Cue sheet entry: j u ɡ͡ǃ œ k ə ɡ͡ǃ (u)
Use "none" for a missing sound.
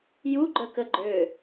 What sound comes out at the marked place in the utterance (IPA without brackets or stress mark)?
ø